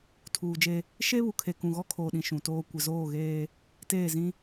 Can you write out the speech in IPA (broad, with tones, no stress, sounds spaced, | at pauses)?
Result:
tʰ uː˨ d͡ʒ e˦ | ʃ e˦ β u˨ kʰ e˨ k ũ˨ ɣ ɔ˦ kʰ oː˨ ɗ ĩ˨ ʃ ũ˨ t oː˦ kʷ ɪ˨ z oː˦˨ ɣ eː˦ | t eː˦˨ z ĩ˦